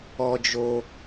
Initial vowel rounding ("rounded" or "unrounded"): rounded